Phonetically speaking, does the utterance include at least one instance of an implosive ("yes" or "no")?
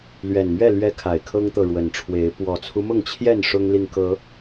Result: no